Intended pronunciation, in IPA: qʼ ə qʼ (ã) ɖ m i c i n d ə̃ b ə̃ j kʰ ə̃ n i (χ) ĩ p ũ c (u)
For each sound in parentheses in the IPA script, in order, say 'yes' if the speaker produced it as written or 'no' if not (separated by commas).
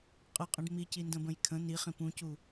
no, yes, yes